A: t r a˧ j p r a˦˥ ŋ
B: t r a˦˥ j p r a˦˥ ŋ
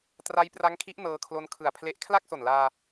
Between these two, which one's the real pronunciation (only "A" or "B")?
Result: B